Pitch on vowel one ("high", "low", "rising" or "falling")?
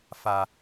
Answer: low